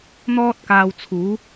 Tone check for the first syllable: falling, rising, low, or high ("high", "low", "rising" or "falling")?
high